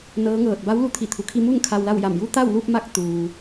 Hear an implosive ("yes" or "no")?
no